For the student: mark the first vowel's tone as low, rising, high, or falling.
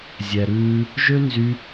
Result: low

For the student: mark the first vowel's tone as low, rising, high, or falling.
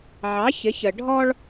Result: rising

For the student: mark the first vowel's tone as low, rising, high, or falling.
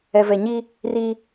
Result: low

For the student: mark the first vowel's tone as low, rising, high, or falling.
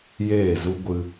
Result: falling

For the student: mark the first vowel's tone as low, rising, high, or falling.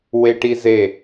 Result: high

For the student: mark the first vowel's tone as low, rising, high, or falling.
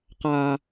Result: low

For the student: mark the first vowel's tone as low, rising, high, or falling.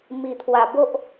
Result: low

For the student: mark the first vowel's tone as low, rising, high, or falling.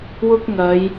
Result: high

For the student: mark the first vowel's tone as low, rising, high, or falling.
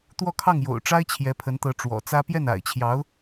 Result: falling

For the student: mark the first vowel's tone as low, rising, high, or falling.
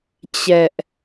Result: high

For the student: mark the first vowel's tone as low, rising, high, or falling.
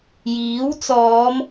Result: rising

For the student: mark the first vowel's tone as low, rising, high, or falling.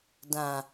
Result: low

